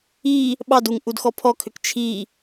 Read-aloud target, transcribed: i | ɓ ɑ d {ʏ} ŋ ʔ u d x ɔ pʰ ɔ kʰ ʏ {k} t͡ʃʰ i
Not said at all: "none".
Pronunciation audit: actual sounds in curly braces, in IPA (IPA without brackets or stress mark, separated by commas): u, k